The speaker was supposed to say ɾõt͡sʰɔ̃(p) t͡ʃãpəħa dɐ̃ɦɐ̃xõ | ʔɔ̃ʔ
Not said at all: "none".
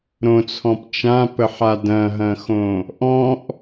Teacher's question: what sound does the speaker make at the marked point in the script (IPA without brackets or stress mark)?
p